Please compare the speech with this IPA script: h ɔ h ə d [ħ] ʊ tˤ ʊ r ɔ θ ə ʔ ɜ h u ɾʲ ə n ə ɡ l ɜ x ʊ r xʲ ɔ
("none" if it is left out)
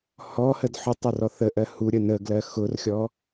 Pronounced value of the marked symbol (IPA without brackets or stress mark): ħ